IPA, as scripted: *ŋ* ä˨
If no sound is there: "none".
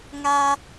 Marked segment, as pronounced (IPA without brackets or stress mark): ŋ